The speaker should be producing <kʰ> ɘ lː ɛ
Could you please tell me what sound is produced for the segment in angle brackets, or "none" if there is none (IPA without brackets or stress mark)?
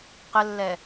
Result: q